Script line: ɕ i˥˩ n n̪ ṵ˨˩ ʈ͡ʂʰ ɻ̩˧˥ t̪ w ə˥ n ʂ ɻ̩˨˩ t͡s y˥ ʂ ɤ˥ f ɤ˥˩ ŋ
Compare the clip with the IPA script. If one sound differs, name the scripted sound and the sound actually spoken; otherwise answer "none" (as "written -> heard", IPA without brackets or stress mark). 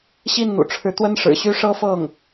t͡s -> ɕ